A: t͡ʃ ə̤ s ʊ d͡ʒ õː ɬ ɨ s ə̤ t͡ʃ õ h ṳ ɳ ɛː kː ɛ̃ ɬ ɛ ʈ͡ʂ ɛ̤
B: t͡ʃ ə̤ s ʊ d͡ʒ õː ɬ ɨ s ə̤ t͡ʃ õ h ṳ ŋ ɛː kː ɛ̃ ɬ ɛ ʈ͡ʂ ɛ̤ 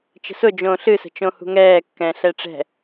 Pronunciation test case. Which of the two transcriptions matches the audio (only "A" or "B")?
B